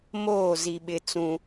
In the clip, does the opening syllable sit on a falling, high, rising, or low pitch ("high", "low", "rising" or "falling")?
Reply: falling